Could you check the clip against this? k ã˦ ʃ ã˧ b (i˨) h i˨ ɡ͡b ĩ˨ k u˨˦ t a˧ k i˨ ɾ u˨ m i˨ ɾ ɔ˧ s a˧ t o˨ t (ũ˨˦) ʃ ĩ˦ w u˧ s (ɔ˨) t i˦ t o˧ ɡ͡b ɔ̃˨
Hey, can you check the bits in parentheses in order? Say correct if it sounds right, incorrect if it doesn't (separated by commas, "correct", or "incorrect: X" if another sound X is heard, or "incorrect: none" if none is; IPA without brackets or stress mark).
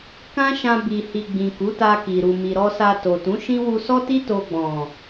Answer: correct, correct, incorrect: ɔ˦